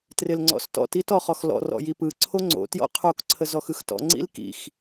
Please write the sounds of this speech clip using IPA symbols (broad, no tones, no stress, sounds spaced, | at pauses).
t r ɪ l ŋ͡ǀ ɔ̰ s t ɔ̰ t i t ɔ χ ɔ x l ɔ̰ r ɔ̰ j i p ɯ ǀʰ o ŋ͡ǀ o̰ t j ɔ̰ qʰ o k ǀʰ ə z ɔ x ɯ x t ɔ̰ ŋ͡ǀ ḭ l k ḭ x